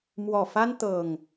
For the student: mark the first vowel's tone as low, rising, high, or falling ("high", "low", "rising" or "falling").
low